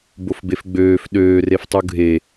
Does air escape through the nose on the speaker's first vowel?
no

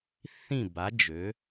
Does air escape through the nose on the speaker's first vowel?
yes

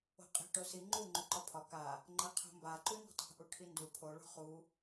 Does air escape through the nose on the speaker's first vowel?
no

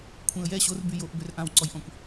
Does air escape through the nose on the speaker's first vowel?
yes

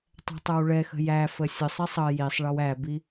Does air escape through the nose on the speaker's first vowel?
no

